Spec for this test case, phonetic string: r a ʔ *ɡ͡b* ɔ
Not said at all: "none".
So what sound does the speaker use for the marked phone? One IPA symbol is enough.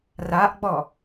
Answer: ɡ͡b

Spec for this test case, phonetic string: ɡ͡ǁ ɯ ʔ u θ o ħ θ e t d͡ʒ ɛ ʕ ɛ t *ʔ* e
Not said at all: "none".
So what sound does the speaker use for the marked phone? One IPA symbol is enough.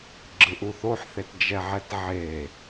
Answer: ʕ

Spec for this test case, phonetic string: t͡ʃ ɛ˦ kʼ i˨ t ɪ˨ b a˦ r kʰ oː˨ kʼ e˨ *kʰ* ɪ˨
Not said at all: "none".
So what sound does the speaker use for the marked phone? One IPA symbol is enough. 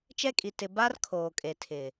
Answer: tʰ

